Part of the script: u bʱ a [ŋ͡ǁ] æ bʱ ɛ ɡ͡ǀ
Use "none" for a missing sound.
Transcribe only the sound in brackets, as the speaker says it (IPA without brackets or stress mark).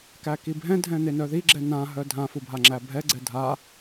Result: ŋ͡ǁ